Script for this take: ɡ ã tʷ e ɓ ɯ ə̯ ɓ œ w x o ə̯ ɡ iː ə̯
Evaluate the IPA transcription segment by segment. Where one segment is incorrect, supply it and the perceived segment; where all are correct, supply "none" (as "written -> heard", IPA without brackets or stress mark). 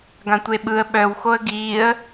none